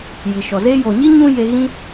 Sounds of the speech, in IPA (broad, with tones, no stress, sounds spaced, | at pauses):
j i˨ ʃ ɔ˨ z eː˧ j o˨ ɲ i˦ ɲ ũ˦ j e˧ ɣ ĩ˦